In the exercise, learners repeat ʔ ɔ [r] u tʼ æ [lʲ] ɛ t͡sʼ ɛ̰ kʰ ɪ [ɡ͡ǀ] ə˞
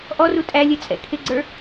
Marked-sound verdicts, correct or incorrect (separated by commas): correct, correct, correct